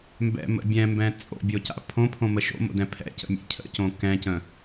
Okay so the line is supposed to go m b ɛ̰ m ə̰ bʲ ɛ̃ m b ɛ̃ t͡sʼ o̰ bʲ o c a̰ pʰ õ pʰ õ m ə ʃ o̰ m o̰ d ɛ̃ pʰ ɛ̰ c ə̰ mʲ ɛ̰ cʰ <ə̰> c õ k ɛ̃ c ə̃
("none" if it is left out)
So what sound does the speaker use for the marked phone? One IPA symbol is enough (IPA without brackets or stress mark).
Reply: ə̰